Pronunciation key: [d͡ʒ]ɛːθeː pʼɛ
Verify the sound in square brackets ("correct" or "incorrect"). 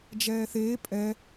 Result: correct